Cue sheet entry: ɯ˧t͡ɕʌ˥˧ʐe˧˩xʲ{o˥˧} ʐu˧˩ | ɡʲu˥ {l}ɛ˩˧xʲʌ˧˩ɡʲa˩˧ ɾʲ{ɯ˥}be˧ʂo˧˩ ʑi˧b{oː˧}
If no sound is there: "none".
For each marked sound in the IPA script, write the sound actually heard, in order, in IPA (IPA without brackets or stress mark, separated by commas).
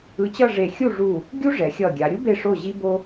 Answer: u˥˧, ʐ, u˥, o˧